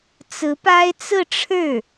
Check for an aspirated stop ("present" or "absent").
present